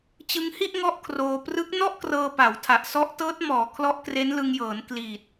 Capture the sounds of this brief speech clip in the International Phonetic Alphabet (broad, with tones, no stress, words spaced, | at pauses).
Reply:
t͡ɕɯ˧ŋhi˥˩ʔ ŋɔ˥˩ʔkʰroː˧ prɯ˦˥k̚nɔ˥˩ʔkrɤː˧ pa˩˦wtʰa˨˩ʔ sɔ˦˥ʔtɤː˦˥t̚mɔː˩˦ kʰlɔ˦˥ʔkre˦˥nlɯ˧ŋjɤː˩˦n kli˨˩t̚